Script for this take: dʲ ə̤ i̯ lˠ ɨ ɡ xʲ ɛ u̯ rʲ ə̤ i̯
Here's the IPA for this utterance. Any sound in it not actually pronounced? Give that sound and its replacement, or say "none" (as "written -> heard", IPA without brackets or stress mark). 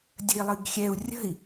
none